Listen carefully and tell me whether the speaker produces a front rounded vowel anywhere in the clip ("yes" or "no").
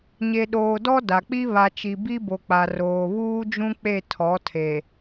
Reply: no